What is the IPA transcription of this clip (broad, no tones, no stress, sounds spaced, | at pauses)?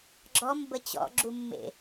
ɡ͡ǁ ɔ m b ə t͡ɕ ɔ̰ ɡ͡ǁ u mː ḛ